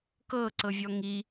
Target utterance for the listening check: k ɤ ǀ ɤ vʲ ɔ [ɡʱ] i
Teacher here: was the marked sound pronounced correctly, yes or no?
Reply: no